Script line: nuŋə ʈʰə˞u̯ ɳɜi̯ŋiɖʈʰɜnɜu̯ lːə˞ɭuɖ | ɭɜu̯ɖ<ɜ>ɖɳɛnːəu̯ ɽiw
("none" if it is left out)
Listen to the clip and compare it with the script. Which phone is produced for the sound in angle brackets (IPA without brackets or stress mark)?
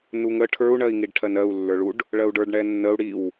ə˞